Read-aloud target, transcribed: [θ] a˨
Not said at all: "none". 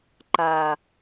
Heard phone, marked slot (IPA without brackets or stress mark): ǃ